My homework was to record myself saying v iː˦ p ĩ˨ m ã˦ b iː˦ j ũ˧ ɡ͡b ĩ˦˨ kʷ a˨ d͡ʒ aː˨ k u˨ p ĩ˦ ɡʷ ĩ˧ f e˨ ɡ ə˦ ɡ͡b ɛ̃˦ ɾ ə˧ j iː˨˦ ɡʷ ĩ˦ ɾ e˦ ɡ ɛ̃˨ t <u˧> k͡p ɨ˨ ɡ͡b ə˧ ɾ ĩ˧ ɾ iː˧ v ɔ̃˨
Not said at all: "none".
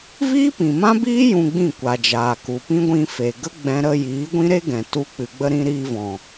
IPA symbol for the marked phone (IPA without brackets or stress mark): u˧